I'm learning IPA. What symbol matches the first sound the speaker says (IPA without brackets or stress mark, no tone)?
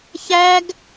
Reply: ç